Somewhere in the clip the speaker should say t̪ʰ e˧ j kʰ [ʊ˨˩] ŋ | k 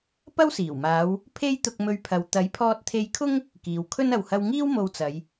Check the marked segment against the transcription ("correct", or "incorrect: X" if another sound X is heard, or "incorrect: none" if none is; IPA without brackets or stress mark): incorrect: ʊ˥